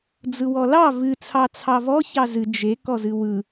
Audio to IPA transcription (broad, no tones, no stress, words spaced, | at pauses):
d͡zɯwɔlɑ vɨ t͡sʰɑt͡sʰɑvɔ çɑzɨ d͡ʒe kɔzɨwɯ